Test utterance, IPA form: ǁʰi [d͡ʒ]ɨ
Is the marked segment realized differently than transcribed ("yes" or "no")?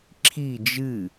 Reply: no